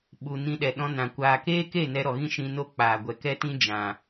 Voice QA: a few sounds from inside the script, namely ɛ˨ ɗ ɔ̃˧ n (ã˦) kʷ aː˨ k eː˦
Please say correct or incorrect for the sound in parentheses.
incorrect